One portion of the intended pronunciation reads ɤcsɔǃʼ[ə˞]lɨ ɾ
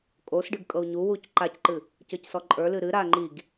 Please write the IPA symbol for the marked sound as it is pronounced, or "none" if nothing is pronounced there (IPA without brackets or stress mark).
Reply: ə˞